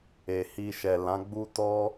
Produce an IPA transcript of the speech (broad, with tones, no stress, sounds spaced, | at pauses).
e˨ h i˧ ʃ ɛ˨ l ã˨˦ ɡ͡b u˦ t ɔ˦